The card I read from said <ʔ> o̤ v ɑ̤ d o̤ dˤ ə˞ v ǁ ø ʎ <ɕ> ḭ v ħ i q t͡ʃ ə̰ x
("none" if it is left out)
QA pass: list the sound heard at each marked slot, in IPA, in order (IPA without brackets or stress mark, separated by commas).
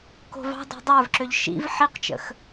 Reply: k, ʃ